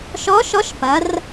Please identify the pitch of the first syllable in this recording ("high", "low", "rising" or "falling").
rising